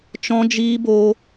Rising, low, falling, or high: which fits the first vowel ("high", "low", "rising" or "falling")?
high